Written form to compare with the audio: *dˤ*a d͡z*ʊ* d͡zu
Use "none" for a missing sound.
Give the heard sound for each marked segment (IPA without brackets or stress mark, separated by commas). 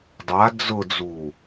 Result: dˤ, ʊ